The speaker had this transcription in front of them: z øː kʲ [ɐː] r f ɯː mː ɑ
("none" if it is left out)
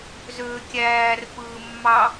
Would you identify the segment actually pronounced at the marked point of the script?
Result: æː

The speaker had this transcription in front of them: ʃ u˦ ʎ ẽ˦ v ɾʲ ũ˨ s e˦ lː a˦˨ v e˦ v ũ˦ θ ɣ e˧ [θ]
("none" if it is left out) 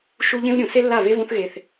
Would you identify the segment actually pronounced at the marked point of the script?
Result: θ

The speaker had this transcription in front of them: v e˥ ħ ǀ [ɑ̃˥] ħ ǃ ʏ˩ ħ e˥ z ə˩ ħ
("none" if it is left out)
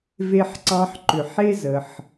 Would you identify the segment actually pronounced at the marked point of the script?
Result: ɑ̃˥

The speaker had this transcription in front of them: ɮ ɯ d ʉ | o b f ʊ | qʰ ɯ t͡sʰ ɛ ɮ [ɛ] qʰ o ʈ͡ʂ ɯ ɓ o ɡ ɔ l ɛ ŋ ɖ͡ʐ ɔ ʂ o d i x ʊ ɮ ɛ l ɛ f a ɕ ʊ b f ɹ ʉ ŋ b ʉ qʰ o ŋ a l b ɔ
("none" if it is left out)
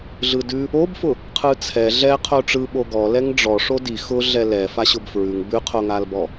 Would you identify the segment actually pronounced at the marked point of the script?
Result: ɛ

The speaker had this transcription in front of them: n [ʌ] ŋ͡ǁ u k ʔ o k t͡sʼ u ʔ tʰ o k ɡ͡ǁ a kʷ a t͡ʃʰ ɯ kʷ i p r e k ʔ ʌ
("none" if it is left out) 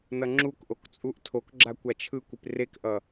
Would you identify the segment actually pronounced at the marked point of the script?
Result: ʌ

